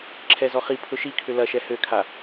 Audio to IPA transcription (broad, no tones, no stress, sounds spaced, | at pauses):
ǁʰ ɛ z ɔ χ i pʰ ʊ ʃ i kʰ ʏ l ɐ ʃ ɛ h ø kʰ a